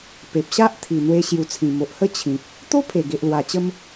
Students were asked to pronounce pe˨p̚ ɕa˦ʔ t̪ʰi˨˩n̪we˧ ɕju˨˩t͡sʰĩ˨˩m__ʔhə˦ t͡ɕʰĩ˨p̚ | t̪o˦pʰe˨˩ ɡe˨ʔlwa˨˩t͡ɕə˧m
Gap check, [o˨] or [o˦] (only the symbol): o˨